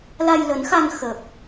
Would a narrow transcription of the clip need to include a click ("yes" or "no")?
no